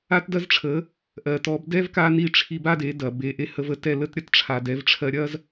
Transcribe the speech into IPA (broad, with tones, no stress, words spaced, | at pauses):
a˦tdɐ˦zʈ͡ʂʰə˨˦ | ʔɜ˨tɔ˨˦b dɛ˦v ka˦ni˦˨ʈ͡ʂʰi˧ba˦ de˨˦dɐ˨ be˨ʔe˧hə˧və˧ tɛ˦˨lə˦tɾʲɐ˦tʈ͡ʂʰa˨ dɛ˨˦vʈ͡ʂʰɜ˧ ɾʲɐ˦z